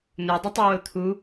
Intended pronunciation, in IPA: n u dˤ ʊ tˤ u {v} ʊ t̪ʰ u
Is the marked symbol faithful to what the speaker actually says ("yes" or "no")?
no